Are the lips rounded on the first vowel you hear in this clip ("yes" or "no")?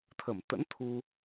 no